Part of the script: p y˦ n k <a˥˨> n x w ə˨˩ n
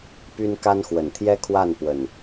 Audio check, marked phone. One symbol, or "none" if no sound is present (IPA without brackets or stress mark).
a˦